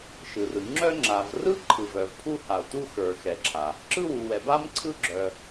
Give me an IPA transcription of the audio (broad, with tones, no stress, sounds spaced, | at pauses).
ʃ ɯ˩ r ɯ˩ ŋ͡ǁ œ˥ ŋ͡ǁ a˩ v r ɯ˥ ǃʰ ɯ˩ v œ˩ v pʰ u˥ h a˩ o̯ t u˥ x ə˞˩ x ɛ˩ ǁʰ a˩ | ǁ ɯ˥ w u˩ w ɛ˩ b a˥ m ǀʰ ɯ˥ ɡ͡ǁ œ˩